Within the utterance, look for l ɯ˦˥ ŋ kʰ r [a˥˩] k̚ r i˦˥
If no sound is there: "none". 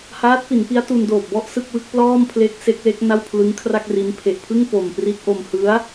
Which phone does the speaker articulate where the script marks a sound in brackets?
a˥˩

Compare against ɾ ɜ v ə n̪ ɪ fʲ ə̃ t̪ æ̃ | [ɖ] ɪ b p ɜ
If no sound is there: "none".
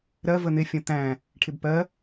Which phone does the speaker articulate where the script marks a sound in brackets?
ʈʰ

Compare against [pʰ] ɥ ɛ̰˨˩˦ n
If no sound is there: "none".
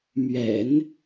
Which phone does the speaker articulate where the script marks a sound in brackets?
m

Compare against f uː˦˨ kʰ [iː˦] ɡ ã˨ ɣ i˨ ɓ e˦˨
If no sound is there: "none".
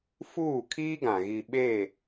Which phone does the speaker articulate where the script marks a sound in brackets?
iː˦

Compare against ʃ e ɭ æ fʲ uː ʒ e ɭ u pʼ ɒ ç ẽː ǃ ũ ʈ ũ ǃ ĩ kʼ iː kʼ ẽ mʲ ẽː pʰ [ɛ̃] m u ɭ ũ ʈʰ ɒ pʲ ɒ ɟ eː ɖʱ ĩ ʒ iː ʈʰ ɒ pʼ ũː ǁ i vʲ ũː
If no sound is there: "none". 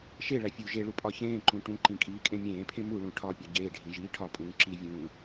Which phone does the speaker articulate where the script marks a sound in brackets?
ẽ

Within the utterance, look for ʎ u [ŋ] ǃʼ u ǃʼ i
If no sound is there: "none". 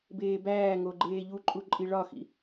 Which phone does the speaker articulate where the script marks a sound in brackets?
none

